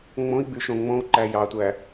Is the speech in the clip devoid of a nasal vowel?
no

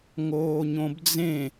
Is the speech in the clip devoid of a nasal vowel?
no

